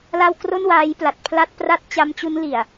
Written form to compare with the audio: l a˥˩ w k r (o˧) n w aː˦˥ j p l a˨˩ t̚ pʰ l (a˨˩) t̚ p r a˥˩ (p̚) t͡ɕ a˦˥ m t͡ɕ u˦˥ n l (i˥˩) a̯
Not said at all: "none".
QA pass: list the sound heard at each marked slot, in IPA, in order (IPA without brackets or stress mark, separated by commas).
o˥˩, a˥˩, t̚, i˨˩